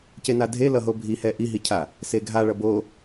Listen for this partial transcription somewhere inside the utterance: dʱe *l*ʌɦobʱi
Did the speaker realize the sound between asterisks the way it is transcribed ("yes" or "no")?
yes